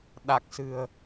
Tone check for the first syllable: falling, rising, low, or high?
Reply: low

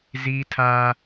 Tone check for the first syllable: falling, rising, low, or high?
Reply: high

